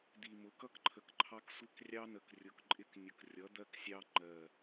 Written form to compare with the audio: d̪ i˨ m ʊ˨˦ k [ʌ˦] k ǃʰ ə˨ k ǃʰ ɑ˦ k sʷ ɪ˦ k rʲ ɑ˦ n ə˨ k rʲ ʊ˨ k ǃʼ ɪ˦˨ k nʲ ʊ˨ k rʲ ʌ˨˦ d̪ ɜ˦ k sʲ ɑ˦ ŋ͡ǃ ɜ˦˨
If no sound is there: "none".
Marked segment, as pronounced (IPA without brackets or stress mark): ʌ˦